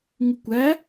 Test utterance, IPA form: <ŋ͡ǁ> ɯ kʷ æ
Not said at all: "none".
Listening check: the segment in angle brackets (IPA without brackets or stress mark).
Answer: ŋ